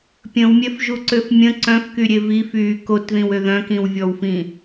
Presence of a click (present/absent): present